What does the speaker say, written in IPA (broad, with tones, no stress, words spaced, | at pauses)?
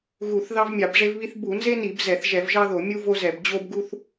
ɣu˧˩˧θ ðɑ˥vmʲɑ˧˩˧bʐe˥vβi˥θ bu˧˩˧nze˥ni˧˩˧b zɛ˧˩˧θ ʒɛ˧˩˧v ʒɑ˥ðo˧˩˧ mʲu˥vo˥zɛ˧˩˧b d͡ʑo˥bɡu˥θ